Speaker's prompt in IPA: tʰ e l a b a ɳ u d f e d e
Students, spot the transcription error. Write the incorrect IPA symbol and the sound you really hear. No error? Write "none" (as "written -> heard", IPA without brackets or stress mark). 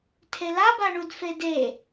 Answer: none